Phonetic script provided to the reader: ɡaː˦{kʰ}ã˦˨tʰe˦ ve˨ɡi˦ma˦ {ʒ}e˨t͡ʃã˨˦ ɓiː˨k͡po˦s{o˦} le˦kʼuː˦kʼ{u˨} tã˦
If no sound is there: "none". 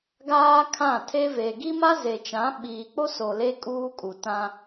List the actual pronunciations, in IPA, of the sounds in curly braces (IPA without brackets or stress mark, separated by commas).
kʰ, z, o˨, u˨